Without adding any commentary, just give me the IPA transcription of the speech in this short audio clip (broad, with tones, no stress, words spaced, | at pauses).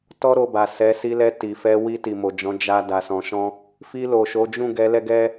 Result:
tɔ˧ ɾo˧ba˨ sɛ˨˦ si˧lɛ˧ ti˨fɛ˧ wi˧ ti˨mo˨d͡ʒɔ̃˨˦ d͡ʒa˦ da˧sɔ̃˧ʃɔ̃˦ | fi˧lo˨ʃo˨˦d͡ʒũ˦˨ ɡɛ˨˦lɛ˦ɡɛ˦